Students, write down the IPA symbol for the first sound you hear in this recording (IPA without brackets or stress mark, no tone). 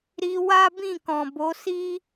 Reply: ɾ